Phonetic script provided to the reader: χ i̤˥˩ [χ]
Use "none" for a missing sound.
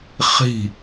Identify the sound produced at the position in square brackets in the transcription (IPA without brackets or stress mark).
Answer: none